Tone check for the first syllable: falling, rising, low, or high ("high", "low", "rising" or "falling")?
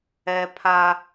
high